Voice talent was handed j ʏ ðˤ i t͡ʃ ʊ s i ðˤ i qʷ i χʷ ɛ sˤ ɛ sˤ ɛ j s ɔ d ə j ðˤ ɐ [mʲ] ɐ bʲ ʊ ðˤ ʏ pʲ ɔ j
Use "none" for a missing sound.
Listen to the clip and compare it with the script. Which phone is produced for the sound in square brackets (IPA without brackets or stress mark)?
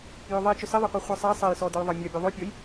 mʲ